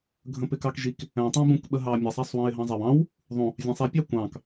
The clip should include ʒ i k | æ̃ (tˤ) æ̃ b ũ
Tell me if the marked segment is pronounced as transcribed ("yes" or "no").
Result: yes